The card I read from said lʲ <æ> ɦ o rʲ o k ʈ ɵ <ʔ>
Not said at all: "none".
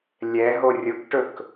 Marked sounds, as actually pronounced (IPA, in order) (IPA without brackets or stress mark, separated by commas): ɛ, k